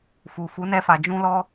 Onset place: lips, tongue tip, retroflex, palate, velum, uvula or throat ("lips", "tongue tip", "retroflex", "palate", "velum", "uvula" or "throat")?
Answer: lips